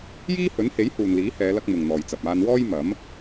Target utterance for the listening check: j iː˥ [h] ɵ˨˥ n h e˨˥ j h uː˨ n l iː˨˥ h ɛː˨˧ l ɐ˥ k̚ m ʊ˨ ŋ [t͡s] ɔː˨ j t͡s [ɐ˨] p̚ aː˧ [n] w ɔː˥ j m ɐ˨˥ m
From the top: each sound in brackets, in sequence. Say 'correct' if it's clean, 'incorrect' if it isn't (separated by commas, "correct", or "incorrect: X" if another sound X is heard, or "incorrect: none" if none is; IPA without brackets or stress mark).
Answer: correct, incorrect: n̪, correct, correct